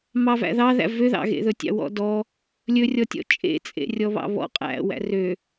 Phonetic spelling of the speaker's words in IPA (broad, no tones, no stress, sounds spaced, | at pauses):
m ɑ v æ̰ ð ɑ ð æ̰ v ø ð ɑ̰ ɣ ḛ ð ɵ tʲ ɑ̰ w ɔ̰ d ɔ | lʲ ɵ rʲ ɔ tʲ ɔ̰ t͡ʃʼ ḛ t͡sʼ ḛ rʲ ɔ β ɑ̰ β ɔ̰ qʼ æ̰ w æ̰ r ø